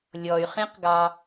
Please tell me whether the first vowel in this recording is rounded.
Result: yes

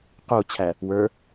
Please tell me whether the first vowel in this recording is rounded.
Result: yes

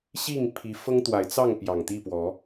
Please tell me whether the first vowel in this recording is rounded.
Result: no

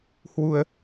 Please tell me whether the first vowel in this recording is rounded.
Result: yes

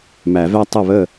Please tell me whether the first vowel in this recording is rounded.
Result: no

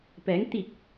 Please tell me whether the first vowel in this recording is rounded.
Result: no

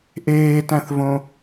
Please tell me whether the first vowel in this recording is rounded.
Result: no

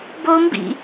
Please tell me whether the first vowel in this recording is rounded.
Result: yes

